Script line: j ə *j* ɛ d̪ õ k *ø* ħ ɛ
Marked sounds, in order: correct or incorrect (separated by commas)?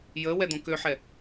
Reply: incorrect, correct